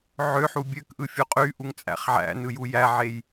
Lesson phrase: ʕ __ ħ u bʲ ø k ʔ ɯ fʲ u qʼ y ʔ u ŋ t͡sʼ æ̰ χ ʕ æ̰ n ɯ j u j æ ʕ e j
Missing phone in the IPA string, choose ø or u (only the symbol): ø